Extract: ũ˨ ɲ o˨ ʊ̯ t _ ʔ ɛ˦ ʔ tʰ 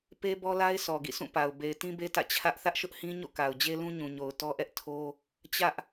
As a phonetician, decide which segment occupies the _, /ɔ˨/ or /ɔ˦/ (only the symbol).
ɔ˦